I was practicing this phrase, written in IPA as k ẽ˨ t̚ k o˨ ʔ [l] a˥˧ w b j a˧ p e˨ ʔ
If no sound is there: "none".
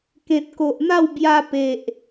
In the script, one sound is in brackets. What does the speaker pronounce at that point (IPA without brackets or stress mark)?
n̪